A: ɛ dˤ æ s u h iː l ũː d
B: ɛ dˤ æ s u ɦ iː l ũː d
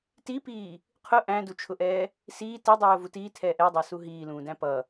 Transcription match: B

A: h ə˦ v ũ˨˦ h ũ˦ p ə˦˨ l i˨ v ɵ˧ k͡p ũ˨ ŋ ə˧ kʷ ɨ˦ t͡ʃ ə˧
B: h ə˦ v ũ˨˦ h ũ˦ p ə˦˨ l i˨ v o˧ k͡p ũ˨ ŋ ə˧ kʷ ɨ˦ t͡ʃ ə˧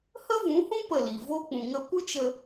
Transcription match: B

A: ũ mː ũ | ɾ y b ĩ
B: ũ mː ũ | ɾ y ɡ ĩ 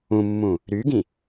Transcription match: B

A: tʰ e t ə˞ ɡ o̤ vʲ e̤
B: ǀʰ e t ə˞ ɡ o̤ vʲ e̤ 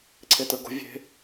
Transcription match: B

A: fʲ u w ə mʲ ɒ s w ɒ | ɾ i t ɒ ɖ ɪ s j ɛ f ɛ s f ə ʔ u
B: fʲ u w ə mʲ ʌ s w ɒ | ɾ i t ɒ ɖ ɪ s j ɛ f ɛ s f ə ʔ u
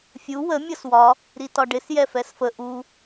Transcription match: B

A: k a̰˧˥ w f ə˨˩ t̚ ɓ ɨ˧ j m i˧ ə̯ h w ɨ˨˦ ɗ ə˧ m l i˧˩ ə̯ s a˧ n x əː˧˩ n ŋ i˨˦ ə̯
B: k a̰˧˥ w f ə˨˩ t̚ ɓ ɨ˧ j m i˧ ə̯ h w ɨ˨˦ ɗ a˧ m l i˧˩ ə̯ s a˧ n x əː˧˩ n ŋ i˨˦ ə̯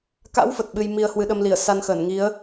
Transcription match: A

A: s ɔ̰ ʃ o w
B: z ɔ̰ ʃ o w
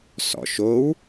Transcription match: A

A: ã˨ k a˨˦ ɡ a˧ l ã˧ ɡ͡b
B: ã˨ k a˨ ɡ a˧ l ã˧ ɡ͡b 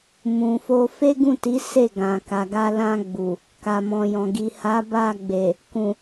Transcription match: B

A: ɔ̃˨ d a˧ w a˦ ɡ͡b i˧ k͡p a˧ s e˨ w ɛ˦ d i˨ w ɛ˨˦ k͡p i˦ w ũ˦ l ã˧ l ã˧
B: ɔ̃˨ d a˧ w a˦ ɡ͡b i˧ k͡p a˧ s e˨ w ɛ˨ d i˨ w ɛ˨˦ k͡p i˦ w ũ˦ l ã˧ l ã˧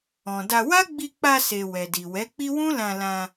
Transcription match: B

